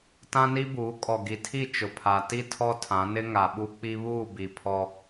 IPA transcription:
tã˦ni˦buː˨˦ kʼɔ˨ɡi˨tʰi˦˨ t͡ʃʊ˨pʰa˨ti˦ tʰɔ˦tʰã˨˦nɪ˦ ŋa˨ɓu˦k͡pi˦ βuː˦˨bi˨ pʰɔ˦

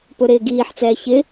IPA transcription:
pɵɾɪːɡiːħt͡sɛː çɪ

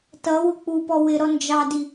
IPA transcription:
tʌ wʊk͡pupɔ wɪɾɔ nd͡ʒɑdi

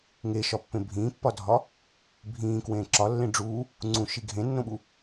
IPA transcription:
ŋeʃɒpːẽ bʱĩːpːɒdʱɒ | bʱĩːkwẽː ǁɒlːẽ ɖ͡ʐuː | ŋ͡ǀũʃi ɡʱẽnːõɓu

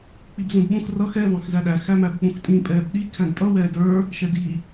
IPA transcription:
k͡pibzũdɓũx rʌx ɛ vɑ̃xzæɗæ xæmæbk͡pũxtʼĩ pʼɛːbɗi kʰæ̃dtʼʌ wɛːdə˞ | ʃɛdi

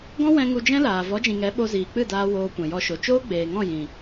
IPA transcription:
ɡɔ̃˦wɛ̃˧ ŋu˧d͡ʒɛ̃˦laː˨ vɔ˨˦d͡ʒĩ˨ŋɛ˨˦ ɓo˧ziː˨k͡pɨ˦˨daː˧ woː˧kʷɛ̃˨jɔ˧ʃo˨ t͡ʃoː˦ɡ͡beː˨ŋɔ̃˦˨ jĩ˨

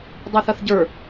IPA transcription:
dˤɛθɐθɟə˞

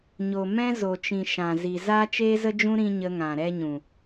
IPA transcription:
ɲo˨mɛ̃˦zo˨t͡ʃĩ˨ ʃã˨zi˨ zaː˦t͡ʃeː˦zə˦d͡ʒũ˦ ɾĩ˦ɲə˧ŋã˨ ɾɛ˦ɲũ˨

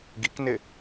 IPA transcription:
ɡiknɪ

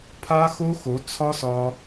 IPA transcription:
pʰa˦xo˦xo˨˦ t͡sʰɒ˦sɒ˧

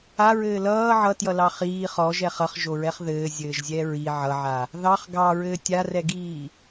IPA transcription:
aɹɘː lʌː ʕʌtjʌlɑ χiː χɔʒɛχ ʌχʒoɹɛχ ðɘːzʲɘːʒzʲɛ ɹi ʕʌʕa | ðɑχ ɡɑɹɘː tʲarɛɡiː

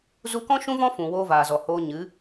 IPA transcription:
zu˧kɔ̃˦ ʃũ˦vɔ̃˦ fũ˨ woː˦vaː˨zɔ˨ hoː˧ɲɨ˨˦

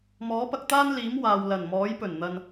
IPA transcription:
mɔː˨˥pɐ˧k̚t̪aː˥nliː˨˥m waː˨wlɐ˨˩nmɔː˨˥j pɵ˨˩nn̪ɐ˨n

